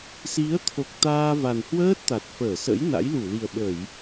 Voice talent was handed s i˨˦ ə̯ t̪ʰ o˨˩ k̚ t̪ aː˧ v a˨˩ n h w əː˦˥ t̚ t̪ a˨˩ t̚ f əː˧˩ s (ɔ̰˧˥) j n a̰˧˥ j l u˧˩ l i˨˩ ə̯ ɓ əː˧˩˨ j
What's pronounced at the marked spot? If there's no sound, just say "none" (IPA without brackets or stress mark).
ə̰˧˥